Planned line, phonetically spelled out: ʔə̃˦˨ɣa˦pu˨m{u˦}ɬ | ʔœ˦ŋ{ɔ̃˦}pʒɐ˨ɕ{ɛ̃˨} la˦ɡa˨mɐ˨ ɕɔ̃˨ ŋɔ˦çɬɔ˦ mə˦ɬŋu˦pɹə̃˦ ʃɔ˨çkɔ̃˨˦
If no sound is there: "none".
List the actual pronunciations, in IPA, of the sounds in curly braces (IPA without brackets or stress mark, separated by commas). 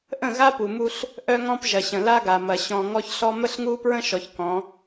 u˦, ɔ̃˦, ə̃˨